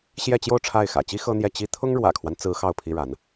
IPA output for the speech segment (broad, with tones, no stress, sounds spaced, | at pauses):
ɕ j ɛ˥˧ t͡ɕ j o˥˧ ʊ̯ ʈ͡ʂʰ a˥˩ ɪ̯ x ä̰˨˩ t͡ɕ i˥ x ɤ˥ n̪ j ɛ˥˩ t͡ɕ i˥ t̪ʰ ʊ˥ ŋ ɻ w ä̰˨˩ kʰ w a˦ n t͡s ɹ̩˧˥ x ɑ˥˩ ʊ̯ pʰ i˥ ɻ a˧˥ n